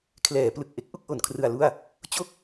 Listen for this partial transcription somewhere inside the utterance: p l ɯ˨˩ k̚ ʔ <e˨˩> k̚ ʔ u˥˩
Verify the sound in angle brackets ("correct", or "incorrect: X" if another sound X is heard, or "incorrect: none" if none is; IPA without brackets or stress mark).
incorrect: e˦˥